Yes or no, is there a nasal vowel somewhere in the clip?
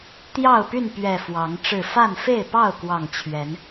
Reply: no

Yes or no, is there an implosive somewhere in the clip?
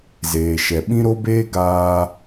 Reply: yes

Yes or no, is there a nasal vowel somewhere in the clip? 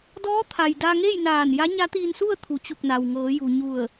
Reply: no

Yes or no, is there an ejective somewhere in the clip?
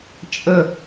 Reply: yes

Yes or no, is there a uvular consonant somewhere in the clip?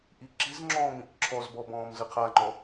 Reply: yes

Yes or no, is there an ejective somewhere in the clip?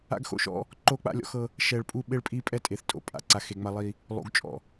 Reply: yes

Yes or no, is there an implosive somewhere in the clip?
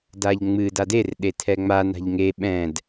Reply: yes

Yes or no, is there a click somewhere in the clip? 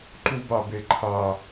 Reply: yes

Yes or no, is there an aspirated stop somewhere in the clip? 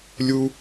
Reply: no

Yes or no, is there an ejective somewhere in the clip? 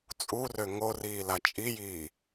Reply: yes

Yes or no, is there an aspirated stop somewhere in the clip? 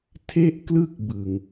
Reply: yes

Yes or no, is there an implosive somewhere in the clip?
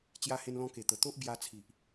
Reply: no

